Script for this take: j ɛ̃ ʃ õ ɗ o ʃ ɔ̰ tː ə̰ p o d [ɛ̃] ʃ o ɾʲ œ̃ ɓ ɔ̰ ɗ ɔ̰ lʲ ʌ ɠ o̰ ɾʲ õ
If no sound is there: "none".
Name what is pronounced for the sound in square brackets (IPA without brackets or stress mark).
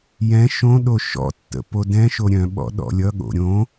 ɛ̃